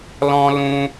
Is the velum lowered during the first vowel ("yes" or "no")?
yes